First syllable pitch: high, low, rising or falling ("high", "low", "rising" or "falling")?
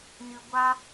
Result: low